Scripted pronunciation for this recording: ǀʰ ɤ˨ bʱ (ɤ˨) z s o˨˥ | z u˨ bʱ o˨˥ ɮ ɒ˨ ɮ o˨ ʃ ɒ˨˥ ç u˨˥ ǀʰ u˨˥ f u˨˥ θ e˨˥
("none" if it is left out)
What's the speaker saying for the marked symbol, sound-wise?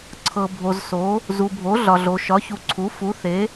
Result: o˨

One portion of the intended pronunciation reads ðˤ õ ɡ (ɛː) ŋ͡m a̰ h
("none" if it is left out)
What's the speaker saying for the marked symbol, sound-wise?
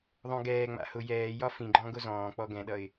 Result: ɛː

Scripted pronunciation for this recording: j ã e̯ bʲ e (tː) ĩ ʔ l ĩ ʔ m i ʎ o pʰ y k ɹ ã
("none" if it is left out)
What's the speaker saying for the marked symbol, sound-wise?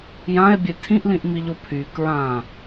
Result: tʰ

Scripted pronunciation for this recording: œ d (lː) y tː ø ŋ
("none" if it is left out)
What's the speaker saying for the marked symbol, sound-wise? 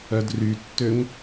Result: r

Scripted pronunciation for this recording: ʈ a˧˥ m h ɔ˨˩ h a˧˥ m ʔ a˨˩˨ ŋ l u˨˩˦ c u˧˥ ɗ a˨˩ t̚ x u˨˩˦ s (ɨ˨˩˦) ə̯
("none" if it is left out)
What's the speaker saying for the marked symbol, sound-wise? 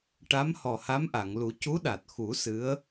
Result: ɨ˧˥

